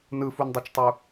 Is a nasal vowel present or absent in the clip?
absent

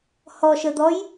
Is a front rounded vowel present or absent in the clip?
absent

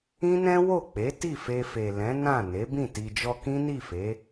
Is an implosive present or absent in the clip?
absent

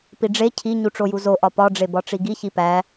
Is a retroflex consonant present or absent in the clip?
present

